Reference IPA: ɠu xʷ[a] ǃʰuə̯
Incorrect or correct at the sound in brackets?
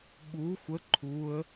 incorrect: ə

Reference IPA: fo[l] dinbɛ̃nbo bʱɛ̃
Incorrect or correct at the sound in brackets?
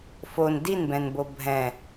incorrect: n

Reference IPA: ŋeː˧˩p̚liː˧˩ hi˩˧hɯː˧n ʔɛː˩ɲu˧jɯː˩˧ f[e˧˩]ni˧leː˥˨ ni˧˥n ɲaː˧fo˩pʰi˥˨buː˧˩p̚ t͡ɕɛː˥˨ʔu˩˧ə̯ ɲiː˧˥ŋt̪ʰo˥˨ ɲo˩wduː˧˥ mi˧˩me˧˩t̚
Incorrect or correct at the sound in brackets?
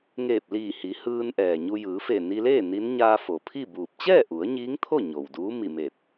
correct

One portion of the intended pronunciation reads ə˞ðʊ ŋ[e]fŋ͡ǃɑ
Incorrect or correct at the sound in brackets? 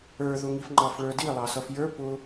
incorrect: i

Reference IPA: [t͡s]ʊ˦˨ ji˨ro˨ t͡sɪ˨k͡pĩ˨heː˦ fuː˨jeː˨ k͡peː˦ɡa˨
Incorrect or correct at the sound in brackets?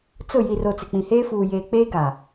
correct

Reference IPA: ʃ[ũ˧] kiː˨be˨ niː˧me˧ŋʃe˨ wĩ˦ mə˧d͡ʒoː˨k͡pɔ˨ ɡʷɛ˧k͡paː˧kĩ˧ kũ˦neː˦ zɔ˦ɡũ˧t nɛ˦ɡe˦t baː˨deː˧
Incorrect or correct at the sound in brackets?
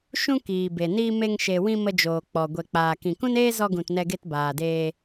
incorrect: ũ˦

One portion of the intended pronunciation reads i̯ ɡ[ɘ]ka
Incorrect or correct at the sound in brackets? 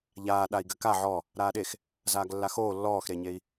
correct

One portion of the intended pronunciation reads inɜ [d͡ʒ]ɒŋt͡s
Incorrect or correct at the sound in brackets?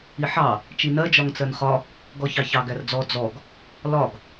correct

